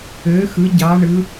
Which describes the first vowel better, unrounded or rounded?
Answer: rounded